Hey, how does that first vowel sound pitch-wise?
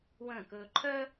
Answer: falling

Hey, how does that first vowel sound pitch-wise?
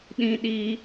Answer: high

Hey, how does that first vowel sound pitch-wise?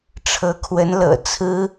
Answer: rising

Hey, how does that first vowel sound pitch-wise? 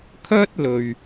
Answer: high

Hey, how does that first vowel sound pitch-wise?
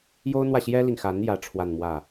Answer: high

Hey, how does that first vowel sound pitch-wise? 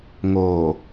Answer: low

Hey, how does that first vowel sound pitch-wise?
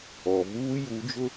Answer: low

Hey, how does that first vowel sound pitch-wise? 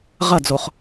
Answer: falling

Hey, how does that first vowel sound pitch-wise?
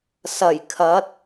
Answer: low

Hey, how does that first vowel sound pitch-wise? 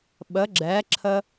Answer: rising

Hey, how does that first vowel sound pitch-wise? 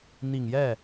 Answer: low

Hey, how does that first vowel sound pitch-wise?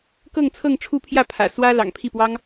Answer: falling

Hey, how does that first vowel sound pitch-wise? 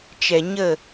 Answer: low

